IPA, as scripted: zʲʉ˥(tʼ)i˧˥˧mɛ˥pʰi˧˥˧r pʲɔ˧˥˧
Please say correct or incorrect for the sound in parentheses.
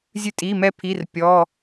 correct